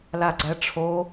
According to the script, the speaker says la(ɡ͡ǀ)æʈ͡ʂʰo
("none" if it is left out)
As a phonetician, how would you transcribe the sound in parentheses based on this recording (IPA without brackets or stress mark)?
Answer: ɡ͡ǀ